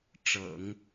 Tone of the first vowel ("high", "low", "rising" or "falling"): low